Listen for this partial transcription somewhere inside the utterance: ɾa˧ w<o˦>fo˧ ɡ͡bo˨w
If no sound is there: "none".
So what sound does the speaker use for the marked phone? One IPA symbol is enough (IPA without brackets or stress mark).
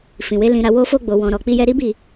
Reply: o˧